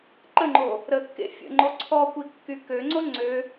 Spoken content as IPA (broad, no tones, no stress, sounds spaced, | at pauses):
ǃ ə ŋ͡ǃ o | ɾ ə kː ḛ fʲ ə̰ ŋ͡ǃ o ǀʰ ɔ kʷ i kː y k ø ŋ͡ǀ o ŋ͡ǀ ø